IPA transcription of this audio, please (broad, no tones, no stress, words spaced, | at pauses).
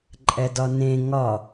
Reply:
ǃʼɛdɒnẽ ŋɒ